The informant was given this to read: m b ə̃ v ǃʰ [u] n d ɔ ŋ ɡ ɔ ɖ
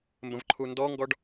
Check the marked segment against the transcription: correct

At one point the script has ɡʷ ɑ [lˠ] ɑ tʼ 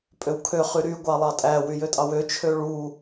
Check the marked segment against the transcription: correct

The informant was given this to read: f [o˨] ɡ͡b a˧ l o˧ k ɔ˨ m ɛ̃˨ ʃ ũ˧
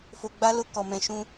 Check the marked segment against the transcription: correct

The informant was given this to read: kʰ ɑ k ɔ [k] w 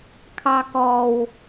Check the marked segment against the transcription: incorrect: none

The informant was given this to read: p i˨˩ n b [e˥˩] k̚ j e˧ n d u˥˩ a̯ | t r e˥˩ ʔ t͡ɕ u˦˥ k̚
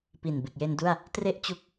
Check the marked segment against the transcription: incorrect: e˨˩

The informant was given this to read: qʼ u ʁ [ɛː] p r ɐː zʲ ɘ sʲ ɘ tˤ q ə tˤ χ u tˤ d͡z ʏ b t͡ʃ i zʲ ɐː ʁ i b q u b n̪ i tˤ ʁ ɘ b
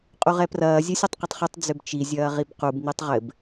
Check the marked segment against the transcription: incorrect: ɛ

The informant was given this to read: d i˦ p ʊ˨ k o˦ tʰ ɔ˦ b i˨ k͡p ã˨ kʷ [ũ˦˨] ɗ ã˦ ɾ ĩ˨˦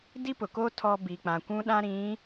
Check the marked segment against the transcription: incorrect: ũ˦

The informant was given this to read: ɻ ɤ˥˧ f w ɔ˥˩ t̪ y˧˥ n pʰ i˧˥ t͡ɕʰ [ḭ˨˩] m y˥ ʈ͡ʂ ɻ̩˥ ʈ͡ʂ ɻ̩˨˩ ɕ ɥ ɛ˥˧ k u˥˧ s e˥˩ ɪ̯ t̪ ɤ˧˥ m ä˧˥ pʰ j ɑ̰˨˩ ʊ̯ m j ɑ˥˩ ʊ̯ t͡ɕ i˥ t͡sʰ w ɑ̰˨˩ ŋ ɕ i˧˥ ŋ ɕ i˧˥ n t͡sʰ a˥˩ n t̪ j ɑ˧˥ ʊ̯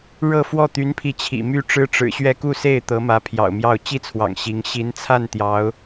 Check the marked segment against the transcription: correct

